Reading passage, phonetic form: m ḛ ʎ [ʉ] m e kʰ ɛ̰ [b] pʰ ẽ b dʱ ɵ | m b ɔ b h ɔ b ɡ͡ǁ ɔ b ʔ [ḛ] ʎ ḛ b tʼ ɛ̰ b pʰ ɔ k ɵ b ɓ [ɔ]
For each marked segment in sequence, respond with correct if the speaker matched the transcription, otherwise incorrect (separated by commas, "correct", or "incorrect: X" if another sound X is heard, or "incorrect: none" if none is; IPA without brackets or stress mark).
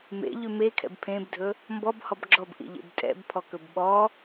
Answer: correct, correct, incorrect: ḭ, correct